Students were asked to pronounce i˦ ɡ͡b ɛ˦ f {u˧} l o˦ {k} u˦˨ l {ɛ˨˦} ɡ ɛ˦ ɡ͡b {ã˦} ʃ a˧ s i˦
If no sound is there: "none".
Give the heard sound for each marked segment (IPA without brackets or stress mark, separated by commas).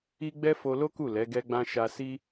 o˧, k, ɛ˨˦, ã˦